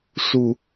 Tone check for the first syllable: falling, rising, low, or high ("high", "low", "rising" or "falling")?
low